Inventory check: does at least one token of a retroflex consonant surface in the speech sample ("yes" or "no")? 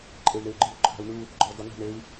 yes